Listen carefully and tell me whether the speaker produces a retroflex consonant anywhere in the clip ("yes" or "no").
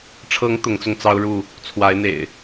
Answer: yes